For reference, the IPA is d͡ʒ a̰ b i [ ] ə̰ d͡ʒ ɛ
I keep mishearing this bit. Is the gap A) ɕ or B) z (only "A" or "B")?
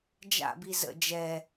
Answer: B